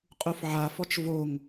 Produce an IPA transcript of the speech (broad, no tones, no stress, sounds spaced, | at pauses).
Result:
qʼ u f ʕ a f ɔ t͡ʃ v o ŋ